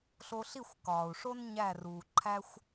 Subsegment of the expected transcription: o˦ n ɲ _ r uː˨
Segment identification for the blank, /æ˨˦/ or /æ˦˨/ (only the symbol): æ˦˨